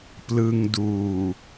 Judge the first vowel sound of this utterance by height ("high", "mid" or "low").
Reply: high